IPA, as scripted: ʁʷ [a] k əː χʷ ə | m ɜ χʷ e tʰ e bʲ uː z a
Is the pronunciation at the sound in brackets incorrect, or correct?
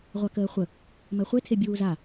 correct